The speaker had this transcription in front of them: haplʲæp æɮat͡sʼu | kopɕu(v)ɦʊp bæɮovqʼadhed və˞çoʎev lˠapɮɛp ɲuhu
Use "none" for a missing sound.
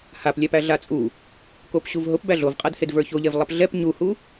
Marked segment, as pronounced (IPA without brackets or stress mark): v